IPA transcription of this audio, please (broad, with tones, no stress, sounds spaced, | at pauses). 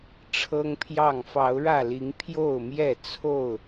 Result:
ʈ͡ʂʰ ɤ˦ ŋ pʰ j ɑ˥˨ ŋ f ɑ˨˦ ʊ̯ ɻ ä˥˨ l i˨˦ ŋ pʰ j o˥˨ ʊ̯ m j ɛ˥˨ t͡sʰ o˥˨ ʊ̯